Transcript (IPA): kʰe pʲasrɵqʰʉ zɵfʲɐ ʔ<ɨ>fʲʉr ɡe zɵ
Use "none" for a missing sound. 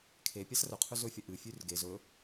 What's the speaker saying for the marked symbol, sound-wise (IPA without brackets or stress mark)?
ɨ